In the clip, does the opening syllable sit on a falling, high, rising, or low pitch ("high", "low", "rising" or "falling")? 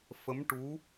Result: rising